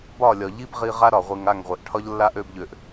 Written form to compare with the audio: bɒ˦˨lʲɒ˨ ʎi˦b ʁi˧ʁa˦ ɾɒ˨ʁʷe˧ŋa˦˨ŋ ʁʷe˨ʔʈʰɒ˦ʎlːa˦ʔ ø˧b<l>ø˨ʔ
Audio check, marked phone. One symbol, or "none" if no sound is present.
ʎ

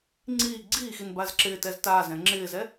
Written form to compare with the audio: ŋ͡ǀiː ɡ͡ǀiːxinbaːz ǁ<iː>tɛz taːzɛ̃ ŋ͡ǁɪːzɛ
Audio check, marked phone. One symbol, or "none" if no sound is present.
ɪː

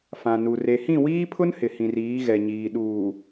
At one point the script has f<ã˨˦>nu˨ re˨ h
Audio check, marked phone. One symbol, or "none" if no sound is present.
ã˨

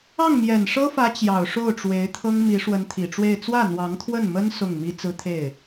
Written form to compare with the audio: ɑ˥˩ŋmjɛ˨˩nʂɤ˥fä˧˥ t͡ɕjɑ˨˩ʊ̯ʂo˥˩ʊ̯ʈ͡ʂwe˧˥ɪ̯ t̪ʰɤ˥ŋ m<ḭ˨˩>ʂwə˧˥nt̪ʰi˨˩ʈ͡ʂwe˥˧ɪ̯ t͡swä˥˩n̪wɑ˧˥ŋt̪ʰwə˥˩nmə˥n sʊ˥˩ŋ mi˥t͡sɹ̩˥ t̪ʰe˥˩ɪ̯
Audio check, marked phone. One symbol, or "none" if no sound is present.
i˧˥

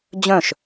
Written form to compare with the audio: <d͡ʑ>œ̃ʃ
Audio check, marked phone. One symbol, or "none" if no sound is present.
d͡ʑ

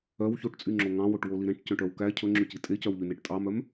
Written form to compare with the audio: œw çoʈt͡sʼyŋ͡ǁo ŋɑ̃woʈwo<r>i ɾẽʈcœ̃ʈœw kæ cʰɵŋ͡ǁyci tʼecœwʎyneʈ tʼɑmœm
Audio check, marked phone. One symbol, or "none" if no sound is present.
l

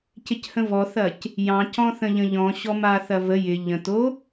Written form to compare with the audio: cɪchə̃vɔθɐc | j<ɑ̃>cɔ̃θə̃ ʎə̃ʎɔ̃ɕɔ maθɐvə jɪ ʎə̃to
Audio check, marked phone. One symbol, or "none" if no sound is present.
ɑ̃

